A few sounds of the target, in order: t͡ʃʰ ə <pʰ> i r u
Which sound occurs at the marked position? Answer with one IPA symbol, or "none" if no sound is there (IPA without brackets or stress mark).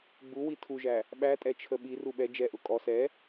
ɓ